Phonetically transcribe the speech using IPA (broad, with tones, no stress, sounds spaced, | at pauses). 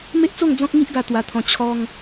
m e˦ ʔ t͡s o˥˧ ŋ d͡z ɔ̃˦ k̚ ŋ i˦ ʔ ɡ a˧ t̪ w a˧ t̪ʰ ɔ̃˧ t͡ɕʰ ɔ˧ ŋ